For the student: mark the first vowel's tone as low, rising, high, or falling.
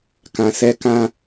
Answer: low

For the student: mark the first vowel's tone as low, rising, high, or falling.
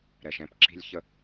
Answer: low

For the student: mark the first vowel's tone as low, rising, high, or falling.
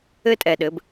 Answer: high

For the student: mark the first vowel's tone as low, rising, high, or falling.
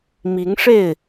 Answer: rising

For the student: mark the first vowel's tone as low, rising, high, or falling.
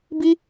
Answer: high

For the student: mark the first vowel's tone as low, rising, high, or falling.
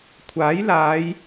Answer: rising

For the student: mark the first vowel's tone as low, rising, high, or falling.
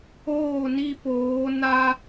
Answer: falling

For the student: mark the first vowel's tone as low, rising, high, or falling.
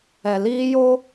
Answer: low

